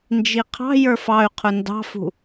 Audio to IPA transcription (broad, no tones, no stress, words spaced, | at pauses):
nd͡ʒiqʰɑ̤jə˞f ɑy̯ qʰʊndɑ̤fṳ